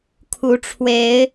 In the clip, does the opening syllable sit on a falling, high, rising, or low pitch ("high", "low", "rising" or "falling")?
rising